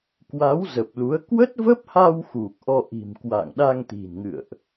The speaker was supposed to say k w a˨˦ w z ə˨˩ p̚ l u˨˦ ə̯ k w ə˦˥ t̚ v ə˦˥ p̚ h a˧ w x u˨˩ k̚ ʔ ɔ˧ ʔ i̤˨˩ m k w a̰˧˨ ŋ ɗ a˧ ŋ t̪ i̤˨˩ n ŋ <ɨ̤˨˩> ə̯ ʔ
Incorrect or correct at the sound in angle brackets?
incorrect: ɨ̰˧˨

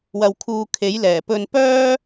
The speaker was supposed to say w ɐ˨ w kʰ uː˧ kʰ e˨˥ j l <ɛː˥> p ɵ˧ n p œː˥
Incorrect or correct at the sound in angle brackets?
incorrect: ɛː˨˩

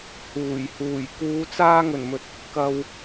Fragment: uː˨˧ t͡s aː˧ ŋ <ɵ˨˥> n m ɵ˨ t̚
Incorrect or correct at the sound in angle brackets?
incorrect: ɵ˨˩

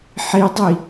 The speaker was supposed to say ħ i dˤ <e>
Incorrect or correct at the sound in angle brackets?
incorrect: i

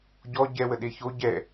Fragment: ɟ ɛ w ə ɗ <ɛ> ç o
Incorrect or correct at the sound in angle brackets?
incorrect: e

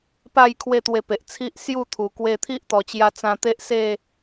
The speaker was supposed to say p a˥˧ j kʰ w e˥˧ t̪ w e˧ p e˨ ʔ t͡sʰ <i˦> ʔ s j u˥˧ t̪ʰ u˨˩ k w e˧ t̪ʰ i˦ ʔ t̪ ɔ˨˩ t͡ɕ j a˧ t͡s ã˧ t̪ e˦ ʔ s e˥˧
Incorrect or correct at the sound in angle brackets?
correct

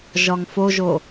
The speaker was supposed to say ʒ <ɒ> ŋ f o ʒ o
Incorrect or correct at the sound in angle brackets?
correct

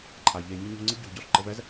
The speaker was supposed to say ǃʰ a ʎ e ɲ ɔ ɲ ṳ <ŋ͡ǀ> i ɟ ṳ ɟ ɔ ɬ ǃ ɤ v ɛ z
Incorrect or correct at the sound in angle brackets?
correct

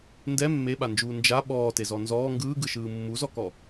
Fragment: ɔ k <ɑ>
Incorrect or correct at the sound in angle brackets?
incorrect: ɔ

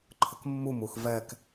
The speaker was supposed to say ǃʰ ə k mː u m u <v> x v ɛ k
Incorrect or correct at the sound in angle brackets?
incorrect: none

